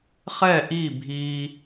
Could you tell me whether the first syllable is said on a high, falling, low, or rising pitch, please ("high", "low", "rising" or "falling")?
falling